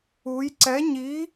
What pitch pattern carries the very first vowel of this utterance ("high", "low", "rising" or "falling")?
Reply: rising